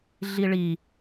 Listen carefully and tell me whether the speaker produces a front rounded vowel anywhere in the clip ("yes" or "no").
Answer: no